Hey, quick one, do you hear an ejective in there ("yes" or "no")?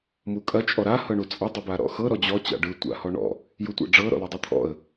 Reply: yes